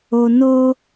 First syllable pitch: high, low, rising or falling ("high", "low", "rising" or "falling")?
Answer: low